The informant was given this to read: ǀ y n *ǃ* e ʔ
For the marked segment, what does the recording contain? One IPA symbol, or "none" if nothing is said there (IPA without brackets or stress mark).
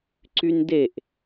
d